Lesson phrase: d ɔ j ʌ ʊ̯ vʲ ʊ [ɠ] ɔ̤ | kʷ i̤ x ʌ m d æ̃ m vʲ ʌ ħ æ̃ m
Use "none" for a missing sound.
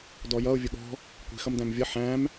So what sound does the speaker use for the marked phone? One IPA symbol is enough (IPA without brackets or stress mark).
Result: ɠ